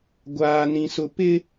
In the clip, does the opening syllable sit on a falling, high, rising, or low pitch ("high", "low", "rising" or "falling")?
high